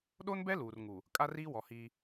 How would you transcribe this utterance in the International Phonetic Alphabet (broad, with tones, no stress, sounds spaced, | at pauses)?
ɗ o˦ n b ɛ˦ l uː˨ r ŋ u˨ | kʼ a˦ r iː˦ w ɔ˨ h iː˦